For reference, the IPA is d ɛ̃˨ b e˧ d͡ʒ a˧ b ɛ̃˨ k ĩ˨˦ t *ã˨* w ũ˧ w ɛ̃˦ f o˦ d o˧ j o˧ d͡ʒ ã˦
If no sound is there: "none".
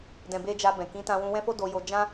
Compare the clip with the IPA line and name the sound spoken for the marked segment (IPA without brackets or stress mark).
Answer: ã˧